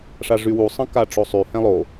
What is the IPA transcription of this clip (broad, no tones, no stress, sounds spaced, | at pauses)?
ʂ a ʐ y w u sˤ ə̃ k a ʈ͡ʂ o sˤ y h ɛ̃ lˠ o